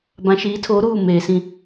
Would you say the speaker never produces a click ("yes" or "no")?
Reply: yes